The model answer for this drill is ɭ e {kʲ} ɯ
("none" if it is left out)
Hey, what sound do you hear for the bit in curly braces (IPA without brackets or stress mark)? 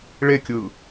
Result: kʲ